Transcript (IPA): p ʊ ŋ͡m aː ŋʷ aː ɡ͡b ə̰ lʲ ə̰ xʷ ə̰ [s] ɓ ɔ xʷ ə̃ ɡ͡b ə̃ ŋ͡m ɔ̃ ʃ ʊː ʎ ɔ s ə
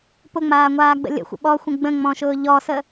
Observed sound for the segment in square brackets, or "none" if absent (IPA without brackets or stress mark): none